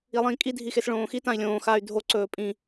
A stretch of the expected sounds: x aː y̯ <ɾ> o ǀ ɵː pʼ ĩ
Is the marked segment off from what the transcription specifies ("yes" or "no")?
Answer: yes